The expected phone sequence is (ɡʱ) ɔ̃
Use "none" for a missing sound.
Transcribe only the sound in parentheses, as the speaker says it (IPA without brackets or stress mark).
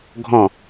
ɡʱ